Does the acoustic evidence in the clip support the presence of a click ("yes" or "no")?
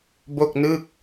no